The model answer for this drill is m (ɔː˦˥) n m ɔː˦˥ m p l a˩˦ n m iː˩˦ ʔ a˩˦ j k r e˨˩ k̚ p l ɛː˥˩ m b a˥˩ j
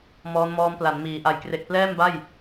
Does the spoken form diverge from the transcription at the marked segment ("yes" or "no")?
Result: no